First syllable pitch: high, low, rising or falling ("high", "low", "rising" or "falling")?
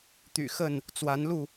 low